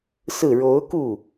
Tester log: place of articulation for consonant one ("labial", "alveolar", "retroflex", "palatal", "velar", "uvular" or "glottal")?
alveolar